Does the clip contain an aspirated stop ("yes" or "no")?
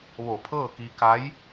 yes